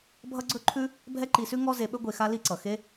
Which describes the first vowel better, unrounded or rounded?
unrounded